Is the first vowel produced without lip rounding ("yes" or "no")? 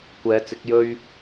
yes